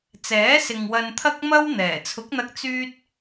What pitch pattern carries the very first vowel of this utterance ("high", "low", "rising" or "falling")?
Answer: rising